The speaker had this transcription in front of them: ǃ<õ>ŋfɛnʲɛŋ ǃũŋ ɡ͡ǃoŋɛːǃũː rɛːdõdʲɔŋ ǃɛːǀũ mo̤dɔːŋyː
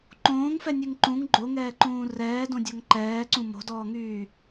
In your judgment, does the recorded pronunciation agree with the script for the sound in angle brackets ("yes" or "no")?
no